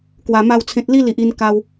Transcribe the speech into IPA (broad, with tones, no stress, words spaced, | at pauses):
kwa˧ma˥˧wt͡sʰẽ˦t̚ li˦li˨ʔ i˧nka˧w